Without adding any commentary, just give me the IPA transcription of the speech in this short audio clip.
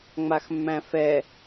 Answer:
ŋ͡maxmːæ̃fɛ

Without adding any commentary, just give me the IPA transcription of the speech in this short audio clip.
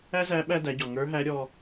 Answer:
æ˥zæ˧˥ ɓæ˧ dæ˩˧ɟɔ˩ ŋə˞˧˥ɦæ˧˥ ɾʲɔ˧

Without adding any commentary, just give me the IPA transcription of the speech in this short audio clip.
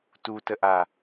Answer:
tutəʔa

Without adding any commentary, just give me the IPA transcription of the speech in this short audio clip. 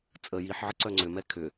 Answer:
t͡sʼə jiħʕə ǀœŋ͡ǀʏmɛ kʰʏ

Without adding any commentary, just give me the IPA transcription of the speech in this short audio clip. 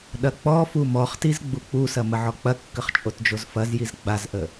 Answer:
ɗɐk͡pɔfu mɔχtiz ɡ͡buk͡pusɐ məʕɔk͡pɐkːəχ t͡ʃʼotd͡ʒozfɐzjiz ɡ͡bazʔə

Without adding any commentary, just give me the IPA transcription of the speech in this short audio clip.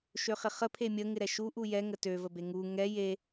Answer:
ʃøχɪχə pʰemʲə ŋɪɾɛʃu ʔujɛ ŋətø vəbeŋu ŋɛ je

